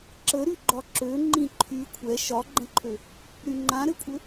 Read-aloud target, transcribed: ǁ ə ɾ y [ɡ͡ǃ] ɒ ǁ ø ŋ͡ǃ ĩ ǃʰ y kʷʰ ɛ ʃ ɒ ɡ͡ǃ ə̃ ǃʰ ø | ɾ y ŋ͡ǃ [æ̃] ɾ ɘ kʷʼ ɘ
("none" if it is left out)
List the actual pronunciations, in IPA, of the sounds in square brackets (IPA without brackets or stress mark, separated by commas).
ɡ͡ǃ, ã